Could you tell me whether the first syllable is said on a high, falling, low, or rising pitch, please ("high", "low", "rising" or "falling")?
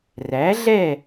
rising